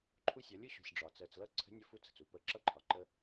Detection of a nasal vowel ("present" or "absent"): absent